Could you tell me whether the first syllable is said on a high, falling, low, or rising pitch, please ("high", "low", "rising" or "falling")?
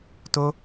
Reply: high